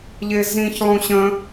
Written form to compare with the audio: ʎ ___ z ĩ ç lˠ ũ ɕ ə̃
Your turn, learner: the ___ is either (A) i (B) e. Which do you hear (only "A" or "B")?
B